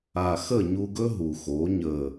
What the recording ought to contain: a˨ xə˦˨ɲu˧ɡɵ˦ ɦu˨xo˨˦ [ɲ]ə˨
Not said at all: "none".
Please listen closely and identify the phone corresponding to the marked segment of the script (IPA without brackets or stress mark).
ɲ